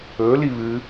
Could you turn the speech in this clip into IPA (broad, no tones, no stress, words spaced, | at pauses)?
ɵ liβɨ